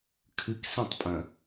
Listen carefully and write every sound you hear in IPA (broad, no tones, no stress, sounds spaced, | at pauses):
kʰ ɨ k s ĩ tˤ pʼ ɐ̃